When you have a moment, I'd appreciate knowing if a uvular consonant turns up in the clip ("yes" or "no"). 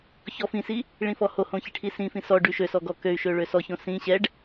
no